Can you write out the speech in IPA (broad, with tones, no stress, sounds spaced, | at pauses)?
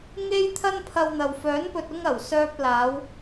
ŋ e˥ j t̪ʰ ɐ˥ n pʰ ɐ˧ w n̪ ɐ˨ w f œː˨˥ n p ɵ˨ t̚ ʊ˧ ŋ ɐ˨˩ w s œː˧ p̚ l aː˨˧ w